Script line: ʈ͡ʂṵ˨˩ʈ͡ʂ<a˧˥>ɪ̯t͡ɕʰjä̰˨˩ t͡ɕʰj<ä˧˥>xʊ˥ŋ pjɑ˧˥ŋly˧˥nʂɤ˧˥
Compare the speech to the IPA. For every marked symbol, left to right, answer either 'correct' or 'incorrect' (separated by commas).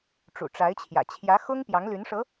correct, correct